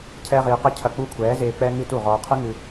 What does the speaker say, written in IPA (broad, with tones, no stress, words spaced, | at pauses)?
cʰɛː˦ʁiː˧qɨ˦ cʰɐ˧k͡pu˦˨kʷʰɛː˨˦zeː˧ k͡pɛ˦ŋɨ˦ tu˦˨ʁɔː˧qʰɨ˦ŋɨ˧